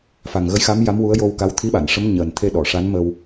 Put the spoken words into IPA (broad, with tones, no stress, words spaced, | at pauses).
fa˨˩ŋɣə˧˥jxa˧˥m ja˧˥mwu˧˥ə̯jo˧wka˧˥w t̪ʰi˧˥ɓa˨˩˨nʂə˧˥m ɲəː˨˩nt̪ʰe˧ ɗɔ˨˩˨ʂa˧˥nmə˧w